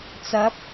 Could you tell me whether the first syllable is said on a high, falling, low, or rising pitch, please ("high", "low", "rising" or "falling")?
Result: rising